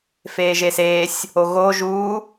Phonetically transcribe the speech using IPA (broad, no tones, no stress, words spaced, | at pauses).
feːʒeseːsʲ | oɣoː ʒuː